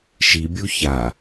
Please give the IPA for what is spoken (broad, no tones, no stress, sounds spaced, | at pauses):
ʃ i bʲ u ç a